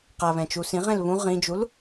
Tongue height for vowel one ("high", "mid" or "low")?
low